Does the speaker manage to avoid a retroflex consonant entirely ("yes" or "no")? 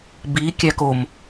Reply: yes